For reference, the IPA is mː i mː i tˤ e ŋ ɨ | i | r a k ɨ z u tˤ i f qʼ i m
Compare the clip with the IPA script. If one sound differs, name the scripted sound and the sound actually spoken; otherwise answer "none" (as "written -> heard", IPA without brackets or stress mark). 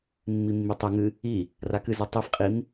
none